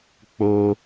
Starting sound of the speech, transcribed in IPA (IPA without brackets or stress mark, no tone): k͡p